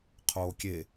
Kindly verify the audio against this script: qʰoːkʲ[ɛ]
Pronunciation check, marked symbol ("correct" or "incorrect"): incorrect